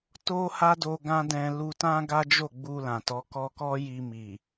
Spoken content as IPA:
t o˦ h a˦ d o˧ ɡ ã˦ d ɛ̃˧ l u˧ t ã˦ ɡ a˦ d͡ʒ o˦˨ ɡ͡b u˧ l ã˨ t ɔ˨˦ k ɔ˧ k ɔ˦ j i˧ m i˨

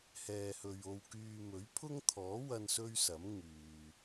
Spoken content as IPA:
h ɛː˨ h ɵ˨ ɥ o˧ w k yː˧ m ɵ˨˥ ɥ pʰ ʊ˥ ŋ t̪ʰ ɔː˨˥ w ɐ˧ n s ɵ˥ ɥ s ɐ˨˥ m ŋ yː˨

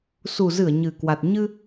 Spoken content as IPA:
s u˨˩ z ɨ˧˩ ə̯ ɲ ɨ˨˩ k w a˨˩ t̚ ɲ ɨ˧

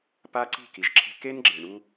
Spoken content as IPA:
p a˦ ǀ i̤˦˨ k i˨ ʒ ǁʰ e̤˦ k e˦ n ɡ͡ǁ e˨ ɳ u˦

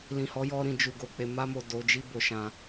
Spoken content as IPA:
l ĩ˨ h ɔ˨˦ j ɔ˧ ɾ ĩ˨ d͡ʒ u˨ ɡ o˨ k͡p e˨ m a˧ m o˨ d o˨˦ d͡ʒ i˦ b o˧ ʃ ã˧

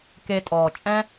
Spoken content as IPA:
k e˧ tʼ ɔː˨ t͡ʃʼ ɛ̃˦

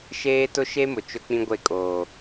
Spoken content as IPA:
ʃ eː˦ t ʊ˦ ʃ e˦ m ʊ˨ t͡ʃ ʊ˦ k͡p ĩ˦ ɡʷ e˦˨ kʼ oː˨

